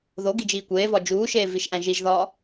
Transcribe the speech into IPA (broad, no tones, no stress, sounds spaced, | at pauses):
ð o ɡ i d͡ʒ iː kʷ eː v ɒ d͡ʒ uː ʃ eː v i ʃ ʔ æ̃ ʒ i ʒ ð ɒː